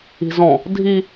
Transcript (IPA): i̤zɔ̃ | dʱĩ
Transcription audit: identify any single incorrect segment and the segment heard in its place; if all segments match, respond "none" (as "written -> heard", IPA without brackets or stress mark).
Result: ĩ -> i